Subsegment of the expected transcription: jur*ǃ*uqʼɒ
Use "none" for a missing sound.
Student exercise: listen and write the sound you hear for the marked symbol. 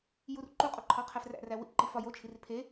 ǃ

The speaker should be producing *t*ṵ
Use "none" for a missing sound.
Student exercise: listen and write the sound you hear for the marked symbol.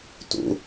t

